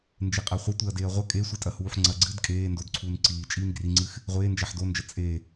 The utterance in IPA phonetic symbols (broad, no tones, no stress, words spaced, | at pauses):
nd͡ʒeqʼaχʷɐ tʷeɐ̯deːɐ̯ʁʷɐ kʼe sʷitʼɐhuːħŋ͡ǀɐ ɡ͡ǀɨd kʼeːndodǀʰuːn ǀiː t͡ʃʼiːnɡriŋ͡ǀɨx | ʁʷeː nd͡ʒaħdond͡ʒɐ t͡sʼe